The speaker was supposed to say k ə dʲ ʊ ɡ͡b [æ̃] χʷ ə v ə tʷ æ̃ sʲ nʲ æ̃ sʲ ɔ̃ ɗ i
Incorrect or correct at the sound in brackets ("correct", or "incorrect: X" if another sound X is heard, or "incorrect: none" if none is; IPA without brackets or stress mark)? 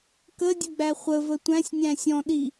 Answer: incorrect: æ